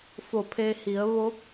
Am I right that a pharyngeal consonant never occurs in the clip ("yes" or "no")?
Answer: yes